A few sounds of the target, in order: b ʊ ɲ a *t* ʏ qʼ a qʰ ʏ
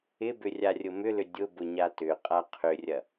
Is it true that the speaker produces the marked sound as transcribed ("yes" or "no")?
yes